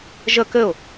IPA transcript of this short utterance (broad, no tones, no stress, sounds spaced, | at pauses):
ʒ ə k ɘ ʊ̯